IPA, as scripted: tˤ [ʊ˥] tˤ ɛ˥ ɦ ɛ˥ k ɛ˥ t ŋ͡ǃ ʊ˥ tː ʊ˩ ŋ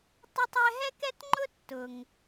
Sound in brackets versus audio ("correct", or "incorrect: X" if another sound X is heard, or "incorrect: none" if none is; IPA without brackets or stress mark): correct